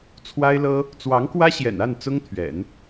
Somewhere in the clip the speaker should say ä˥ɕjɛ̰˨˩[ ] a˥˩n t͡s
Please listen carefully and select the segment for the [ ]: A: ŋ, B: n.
B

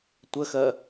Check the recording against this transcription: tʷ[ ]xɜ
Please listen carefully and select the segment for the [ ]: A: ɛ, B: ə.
B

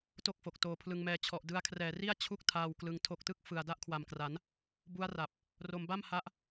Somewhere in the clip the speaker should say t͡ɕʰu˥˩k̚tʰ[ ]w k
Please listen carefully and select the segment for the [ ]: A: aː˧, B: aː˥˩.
A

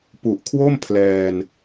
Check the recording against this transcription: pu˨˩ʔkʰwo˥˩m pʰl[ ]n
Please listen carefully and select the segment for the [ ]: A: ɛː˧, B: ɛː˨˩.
A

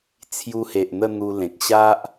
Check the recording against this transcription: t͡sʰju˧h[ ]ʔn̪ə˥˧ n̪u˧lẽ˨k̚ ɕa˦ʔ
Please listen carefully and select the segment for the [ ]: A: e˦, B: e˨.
B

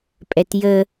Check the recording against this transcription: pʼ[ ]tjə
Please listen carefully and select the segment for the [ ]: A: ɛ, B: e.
A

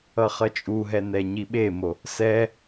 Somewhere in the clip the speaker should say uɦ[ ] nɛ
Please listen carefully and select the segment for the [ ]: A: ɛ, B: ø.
A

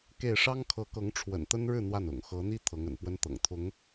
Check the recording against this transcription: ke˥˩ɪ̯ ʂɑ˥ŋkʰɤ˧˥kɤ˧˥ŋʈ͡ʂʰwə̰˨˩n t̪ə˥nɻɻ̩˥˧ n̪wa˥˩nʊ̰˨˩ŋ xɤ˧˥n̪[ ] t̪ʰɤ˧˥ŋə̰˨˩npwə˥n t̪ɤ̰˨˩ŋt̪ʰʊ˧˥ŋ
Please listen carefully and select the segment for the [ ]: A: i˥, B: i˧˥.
A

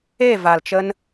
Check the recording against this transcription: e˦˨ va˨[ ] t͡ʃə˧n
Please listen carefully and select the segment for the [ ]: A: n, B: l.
B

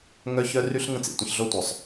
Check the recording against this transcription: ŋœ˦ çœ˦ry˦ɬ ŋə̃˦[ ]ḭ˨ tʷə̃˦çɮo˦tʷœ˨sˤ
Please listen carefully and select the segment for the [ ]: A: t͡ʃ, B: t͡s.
B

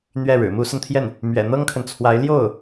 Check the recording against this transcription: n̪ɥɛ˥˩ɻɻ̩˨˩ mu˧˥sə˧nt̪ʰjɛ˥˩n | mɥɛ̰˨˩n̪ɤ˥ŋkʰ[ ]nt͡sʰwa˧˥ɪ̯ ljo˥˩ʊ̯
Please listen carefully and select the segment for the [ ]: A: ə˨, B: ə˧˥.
A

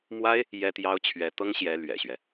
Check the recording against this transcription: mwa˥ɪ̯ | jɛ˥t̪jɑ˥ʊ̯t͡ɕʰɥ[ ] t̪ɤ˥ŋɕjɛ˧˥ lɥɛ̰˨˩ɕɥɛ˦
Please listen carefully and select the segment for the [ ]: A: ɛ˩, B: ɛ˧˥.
B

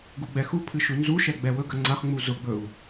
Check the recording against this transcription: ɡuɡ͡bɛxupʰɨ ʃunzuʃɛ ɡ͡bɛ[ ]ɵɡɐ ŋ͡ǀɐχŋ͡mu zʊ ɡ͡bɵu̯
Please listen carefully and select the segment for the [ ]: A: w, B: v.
A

